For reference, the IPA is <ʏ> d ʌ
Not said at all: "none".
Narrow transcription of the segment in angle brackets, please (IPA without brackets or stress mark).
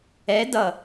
ɛ